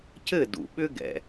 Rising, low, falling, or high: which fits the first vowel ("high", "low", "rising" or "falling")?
falling